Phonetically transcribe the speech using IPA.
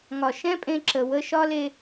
ŋ ɒ˨ ʃ ɛ̃˦ pʼ ẽ˧ ǁ ə˨ w ə˧ ʃ ɒ˦ l e˧

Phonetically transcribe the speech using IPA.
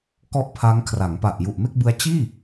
k ɔ˥˩ ʔ pʰ a˦˥ ŋ kʰ r a˩˦ ŋ p a˨˩ ʔ j u˨˩ ʔ m e˥˩ k̚ b ɯ˦˥ a̯ t͡ɕ iː˥˩

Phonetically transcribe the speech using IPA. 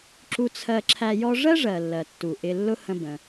ǁ u˧ t͡sʰ ɜ˧ ǁʰ æ˧ j ɔ˥ ʐ ɜ˥ ʐ ɜ˩ lː ɜ˩ tː u˩ ʔ ɪ˧ lː ʊ˥ h ə̃˧ b ə̃˩

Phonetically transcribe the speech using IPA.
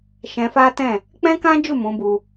ʃ ɛ̃˧ f a˦ t ɛ̃˦˨ | k͡p ɛ̃˦ k ã˦ d͡ʒ u˦˨ m ũ˨˦ b u˧

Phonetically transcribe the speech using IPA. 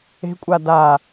e̤ kʷʼ a d a

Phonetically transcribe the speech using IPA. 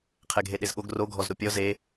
qʰ ɛ ɡʱ e ɗ e z ɠ o ɡ r o ɡʱ ɔ z ɾ o pʲ ɔ z e

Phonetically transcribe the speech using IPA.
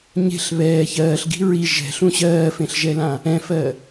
ɲ e̤ ɬ β ɛː ç ɜː ɬ ɡ i̤ ɹ i ʒ ɛ̤ ɬ ũ ɕ ɜː f ẽ ɬ ʒ ɛ l ã | ɛ̃ f ɜ

